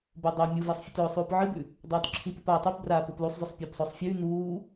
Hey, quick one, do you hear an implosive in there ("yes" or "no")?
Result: no